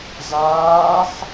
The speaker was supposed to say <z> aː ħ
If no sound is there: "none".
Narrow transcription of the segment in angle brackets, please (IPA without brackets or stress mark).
z